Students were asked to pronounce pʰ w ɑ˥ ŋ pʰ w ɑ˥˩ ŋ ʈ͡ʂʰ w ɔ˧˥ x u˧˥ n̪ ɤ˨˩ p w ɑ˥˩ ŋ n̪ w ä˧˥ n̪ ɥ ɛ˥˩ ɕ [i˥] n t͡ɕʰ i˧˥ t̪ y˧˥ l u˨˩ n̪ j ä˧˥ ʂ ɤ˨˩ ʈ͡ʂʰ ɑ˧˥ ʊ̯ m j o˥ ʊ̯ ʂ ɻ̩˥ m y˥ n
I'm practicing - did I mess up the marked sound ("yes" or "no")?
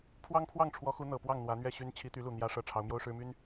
yes